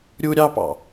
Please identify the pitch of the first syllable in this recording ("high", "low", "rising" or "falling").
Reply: high